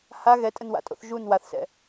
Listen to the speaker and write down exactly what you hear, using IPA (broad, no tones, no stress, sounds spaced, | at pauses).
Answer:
h a ɣ ɛ tʼ ə n w a̰ tʼ o̰ θ ʒ u n w a θ s ɛ̰